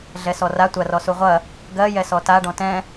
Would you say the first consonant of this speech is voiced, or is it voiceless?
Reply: voiced